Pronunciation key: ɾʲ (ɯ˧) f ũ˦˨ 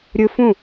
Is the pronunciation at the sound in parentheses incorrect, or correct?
correct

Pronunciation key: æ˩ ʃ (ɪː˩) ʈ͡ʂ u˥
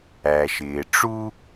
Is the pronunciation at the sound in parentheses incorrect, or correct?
correct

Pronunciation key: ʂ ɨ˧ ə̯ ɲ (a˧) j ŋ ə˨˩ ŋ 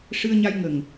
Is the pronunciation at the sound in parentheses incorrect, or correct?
correct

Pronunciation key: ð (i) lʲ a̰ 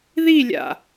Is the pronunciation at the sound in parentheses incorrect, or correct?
correct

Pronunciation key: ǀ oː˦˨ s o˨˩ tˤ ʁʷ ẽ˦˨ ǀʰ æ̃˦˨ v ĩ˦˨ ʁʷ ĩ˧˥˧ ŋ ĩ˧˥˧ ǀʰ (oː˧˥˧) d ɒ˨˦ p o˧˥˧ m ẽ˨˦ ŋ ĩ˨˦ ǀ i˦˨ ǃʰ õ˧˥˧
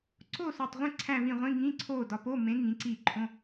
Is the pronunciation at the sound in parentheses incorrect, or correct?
incorrect: oː˦˨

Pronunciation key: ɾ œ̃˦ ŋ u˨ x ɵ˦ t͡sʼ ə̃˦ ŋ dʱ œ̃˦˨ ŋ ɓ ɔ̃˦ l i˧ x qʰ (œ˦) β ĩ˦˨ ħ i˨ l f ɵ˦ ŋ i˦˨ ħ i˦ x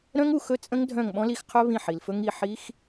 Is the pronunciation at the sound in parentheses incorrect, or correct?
correct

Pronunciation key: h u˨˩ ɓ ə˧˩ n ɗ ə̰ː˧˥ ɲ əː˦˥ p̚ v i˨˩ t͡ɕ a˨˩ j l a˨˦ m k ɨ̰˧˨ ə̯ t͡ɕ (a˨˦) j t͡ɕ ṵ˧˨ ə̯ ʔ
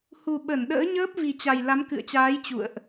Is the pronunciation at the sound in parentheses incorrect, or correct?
incorrect: aː˨˦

